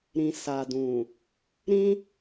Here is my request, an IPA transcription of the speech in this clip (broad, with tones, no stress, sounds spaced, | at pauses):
ɾ ĩ˨ s a˨ d ũ˨ | ɾ ĩ˦